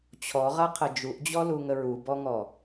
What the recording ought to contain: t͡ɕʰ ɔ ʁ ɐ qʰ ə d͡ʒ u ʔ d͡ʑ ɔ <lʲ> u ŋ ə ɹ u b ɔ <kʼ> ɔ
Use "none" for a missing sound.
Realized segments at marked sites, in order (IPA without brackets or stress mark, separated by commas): l, ŋ